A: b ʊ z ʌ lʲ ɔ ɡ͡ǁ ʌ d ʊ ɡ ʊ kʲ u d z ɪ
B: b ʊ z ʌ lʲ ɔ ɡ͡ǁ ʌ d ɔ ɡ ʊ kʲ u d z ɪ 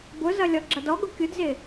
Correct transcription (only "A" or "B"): B